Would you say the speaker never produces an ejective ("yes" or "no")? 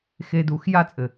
no